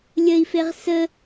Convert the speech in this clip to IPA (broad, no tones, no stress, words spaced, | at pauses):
lʲəi̯feʁ sə